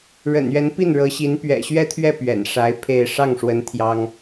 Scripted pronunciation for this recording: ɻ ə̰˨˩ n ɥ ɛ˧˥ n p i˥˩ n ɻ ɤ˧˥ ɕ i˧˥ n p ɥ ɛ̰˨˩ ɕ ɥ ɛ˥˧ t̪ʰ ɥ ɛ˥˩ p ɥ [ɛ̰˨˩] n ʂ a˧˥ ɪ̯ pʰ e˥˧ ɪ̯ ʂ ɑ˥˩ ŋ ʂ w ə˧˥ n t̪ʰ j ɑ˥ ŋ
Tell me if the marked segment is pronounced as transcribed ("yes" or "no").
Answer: yes